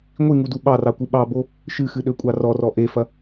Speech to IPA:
ŋʷ i ŋ u d u ɓ ɑ r ɑ kʷ ɨ ɓ ɑ b o | ʃ ɨ x ɨ ɗ ø kʷʼ ɑ r ɔ r ɔ ʔ e f ɐ

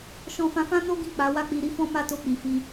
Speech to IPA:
ʃ ɔ̃˧ f ã˧ f ã˦ n o˦ ɡ ĩ˦˨ k͡p a˨˦ w a˦ k͡p i˧ ɾ i˦ f ɔ̃˦ m a˦ t o˧ k͡p i˨ f i˧

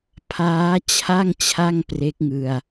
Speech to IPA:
pʰ aː˦˥ t͡ɕʰ a˥˩ ŋ t͡ɕʰ a˥˩ ŋ p r e˦˥ k̚ ŋ ɯ˧ a̯

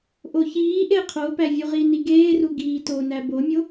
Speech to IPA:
ʔ o ç iː ʔ e qʰ o p æ vʲ u ʁ i n i ɡ eː r u ɡ iː t o n æ b o mʲ o

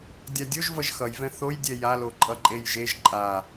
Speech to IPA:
dʲ a dʲ o ʒ v ʌ ʒ x ʌ j v ɛ̃ θ o j dʲ ɛ j a l o ǃʼ ʌ ǃʼ e j ʒ e ʒ ǃʼ a

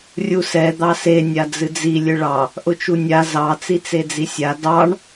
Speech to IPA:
rʲ u s ɛ d̪ ɑ s e nʲ a d͡z ɨ d͡z i lʲ ɨ ɭ ɑ | ʔ ʊ t͡ʃ u nʲ a z ɑ t͡s i t͡s e d͡z i sʲ a d ɑ ɳ

